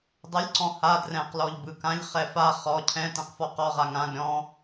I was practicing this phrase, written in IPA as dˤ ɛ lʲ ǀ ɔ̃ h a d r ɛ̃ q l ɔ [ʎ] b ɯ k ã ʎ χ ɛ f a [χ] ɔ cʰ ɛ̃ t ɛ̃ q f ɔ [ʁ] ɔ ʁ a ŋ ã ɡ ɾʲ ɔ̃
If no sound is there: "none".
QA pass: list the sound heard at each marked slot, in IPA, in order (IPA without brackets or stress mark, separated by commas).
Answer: ʎ, χ, q